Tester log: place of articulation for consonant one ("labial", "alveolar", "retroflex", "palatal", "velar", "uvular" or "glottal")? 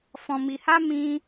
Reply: labial